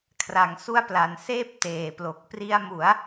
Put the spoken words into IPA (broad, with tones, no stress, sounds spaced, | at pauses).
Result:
kʰ r a˨˩ ŋ s u˦˥ a̯ p l a˩˦ n s eː˥˩ p̚ t eː˨˩ p l o˨˩ k̚ p r i˧ a̯ m u˩˦ a̯